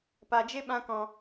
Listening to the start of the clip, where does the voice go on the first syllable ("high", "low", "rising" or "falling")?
low